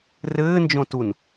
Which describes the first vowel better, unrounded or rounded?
unrounded